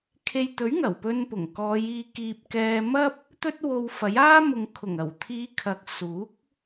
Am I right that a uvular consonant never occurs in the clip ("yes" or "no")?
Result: yes